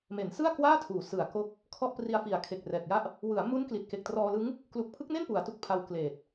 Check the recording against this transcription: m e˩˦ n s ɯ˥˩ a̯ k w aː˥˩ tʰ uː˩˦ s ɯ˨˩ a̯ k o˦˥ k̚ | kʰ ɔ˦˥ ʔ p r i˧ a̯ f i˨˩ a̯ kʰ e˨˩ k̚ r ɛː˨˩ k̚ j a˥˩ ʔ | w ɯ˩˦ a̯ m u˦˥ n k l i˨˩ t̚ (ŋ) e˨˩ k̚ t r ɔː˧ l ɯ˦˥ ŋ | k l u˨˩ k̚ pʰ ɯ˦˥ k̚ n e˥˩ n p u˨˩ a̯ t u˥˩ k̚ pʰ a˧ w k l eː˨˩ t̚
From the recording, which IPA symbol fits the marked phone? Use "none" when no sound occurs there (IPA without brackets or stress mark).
k